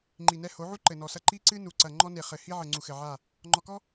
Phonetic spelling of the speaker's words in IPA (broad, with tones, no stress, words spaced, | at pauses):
ŋ͡ǃi˨nɛ˦ ho˨˦ʕu˦ ǃɘ˨nɔ˨sɐ˦ ǃi˦ǀɨ˦nu˨ǀɐ˨ ŋ͡ǃɔ˦ne˨χɘ˨ hi˦ʕɘ˨ ŋ͡ǀu˨xɘ˨ʕa˦˨ | ŋ͡ǃɔ˨kɔ˦